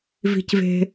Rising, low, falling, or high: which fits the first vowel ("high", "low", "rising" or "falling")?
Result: low